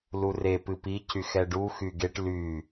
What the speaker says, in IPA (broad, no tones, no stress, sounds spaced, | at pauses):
l u r e p ɨ p i c y x ɛ ɖ u x y ɡ e ʈ l y